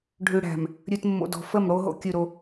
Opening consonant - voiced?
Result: yes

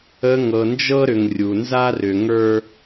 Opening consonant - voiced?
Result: yes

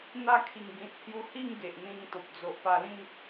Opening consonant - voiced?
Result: yes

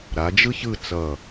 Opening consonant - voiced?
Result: yes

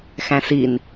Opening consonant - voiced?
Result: no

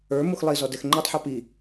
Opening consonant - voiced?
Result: yes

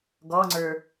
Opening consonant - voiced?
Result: yes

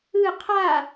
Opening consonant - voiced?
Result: no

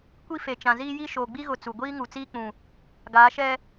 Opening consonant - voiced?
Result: no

